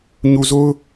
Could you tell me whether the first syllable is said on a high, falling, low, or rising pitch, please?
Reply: low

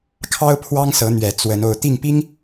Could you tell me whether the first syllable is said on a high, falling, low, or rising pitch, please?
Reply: high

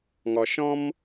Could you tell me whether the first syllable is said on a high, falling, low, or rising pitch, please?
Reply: low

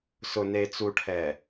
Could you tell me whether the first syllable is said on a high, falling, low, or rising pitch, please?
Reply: low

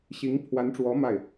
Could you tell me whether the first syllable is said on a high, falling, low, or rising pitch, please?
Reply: rising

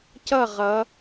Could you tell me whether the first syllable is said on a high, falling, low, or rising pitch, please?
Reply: falling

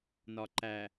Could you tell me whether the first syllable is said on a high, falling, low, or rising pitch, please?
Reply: low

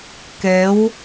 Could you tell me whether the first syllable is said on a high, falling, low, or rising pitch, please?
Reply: rising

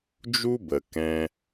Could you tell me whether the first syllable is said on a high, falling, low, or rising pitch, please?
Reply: high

